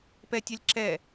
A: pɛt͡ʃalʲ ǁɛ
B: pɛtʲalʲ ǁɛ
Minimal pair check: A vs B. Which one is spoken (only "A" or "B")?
B